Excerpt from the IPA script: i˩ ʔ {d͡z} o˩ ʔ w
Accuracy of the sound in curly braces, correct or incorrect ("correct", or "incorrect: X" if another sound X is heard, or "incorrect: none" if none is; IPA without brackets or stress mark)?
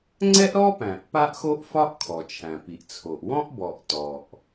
incorrect: t͡sʰ